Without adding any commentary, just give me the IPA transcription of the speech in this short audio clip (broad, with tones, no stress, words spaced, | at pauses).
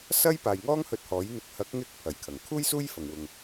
sɐ˥j paː˨jŋɔː˥ŋ hɵ˧t̚hɔː˨˥jn̪ɪ˨˥k̚ hɐ˨˥k̚ŋɪ˧k̚ pʰɐ˨˩jkʰɐ˨˩ŋkʰuː˥j suː˥jfɐ˨ŋwʊ˨ŋ